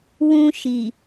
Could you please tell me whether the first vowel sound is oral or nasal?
nasal